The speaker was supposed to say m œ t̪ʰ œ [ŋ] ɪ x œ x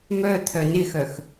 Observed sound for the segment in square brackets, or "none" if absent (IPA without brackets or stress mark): n